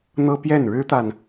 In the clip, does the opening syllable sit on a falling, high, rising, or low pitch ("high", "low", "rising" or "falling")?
high